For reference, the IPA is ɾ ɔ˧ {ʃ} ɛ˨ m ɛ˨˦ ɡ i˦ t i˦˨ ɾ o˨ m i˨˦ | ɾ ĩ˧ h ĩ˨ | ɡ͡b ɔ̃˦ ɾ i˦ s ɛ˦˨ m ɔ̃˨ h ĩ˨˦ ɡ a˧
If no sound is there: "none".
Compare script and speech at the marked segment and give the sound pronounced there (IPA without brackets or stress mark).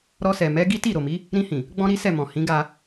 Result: s